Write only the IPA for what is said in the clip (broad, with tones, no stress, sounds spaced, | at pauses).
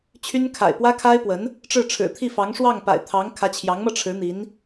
t͡ɕʰ y˥ n kʰ a̰˨˩ ɪ̯ p w ä˥ kʰ a˥ ɪ̯ p w ə˧˥ n | ʈ͡ʂ ɻ̩˥˩ ʈ͡ʂʰ ɻ̩˨˩ t̪ʰ i˥˩ f ɑ˧˥ ŋ ʂ w ɑ˥˩ ŋ p a̰˨˩ ɪ̯ t̪ʰ ɑ˧˥ ŋ kʰ ä˧˥ t͡ɕʰ j ɑ˧˥ ŋ m ɤ˧ ʈ͡ʂʰ ɻ̩˧˥ n̪ i˧˥ n